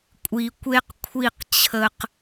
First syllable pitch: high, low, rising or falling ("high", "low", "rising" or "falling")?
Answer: low